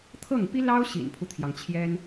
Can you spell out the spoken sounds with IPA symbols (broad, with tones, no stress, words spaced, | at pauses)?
t̪ʰɤ˥˩ŋpi˥lɑ˥ʊ̯ ɕḭ˨˩npʰu˦t̪ʰjɑ˩ŋt͡ɕʰjɛ˥n